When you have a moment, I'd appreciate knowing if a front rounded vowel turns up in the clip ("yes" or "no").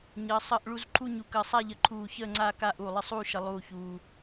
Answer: no